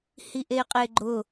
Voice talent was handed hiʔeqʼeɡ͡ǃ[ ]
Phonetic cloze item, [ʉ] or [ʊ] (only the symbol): ʊ